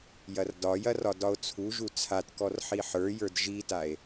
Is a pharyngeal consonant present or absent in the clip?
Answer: present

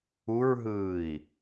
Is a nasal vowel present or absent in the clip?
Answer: absent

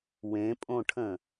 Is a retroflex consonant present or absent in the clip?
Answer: present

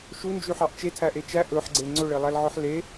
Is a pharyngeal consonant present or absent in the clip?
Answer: present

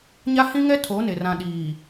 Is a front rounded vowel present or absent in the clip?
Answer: absent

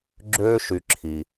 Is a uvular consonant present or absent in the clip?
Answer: absent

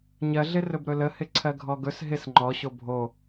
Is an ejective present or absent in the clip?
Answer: absent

